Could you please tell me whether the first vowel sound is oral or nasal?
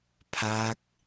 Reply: oral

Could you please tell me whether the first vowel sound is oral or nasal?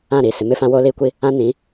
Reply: nasal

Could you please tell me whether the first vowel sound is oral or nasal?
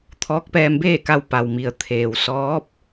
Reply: oral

